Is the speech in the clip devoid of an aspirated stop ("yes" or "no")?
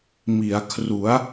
no